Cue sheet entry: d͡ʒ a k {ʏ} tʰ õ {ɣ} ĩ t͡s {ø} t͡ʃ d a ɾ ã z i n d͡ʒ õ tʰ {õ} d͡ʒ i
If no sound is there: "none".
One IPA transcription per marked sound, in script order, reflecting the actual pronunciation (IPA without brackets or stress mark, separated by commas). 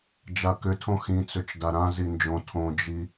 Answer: ʏ, x, ø, õ